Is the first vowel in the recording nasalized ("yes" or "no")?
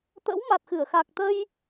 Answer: no